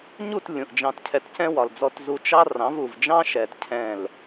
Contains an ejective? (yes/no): no